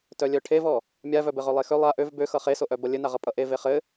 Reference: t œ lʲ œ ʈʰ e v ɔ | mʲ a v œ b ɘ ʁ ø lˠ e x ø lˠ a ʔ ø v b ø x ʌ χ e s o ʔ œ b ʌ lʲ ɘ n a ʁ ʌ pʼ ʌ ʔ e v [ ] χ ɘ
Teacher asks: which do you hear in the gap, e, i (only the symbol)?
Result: e